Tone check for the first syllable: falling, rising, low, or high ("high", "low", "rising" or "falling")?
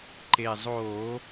low